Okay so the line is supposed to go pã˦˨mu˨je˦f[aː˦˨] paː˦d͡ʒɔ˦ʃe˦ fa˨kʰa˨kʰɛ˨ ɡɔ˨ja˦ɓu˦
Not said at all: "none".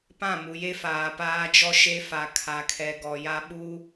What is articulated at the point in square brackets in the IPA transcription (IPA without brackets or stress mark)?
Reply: aː˨